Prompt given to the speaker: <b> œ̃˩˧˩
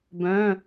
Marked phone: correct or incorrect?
correct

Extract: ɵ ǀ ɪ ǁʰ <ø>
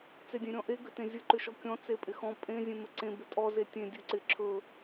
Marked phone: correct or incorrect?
incorrect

